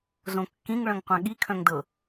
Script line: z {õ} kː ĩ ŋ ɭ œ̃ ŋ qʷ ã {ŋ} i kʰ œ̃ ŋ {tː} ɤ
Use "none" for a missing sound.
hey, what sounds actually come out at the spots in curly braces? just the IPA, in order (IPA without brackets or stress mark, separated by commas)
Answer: õ, ɠ, d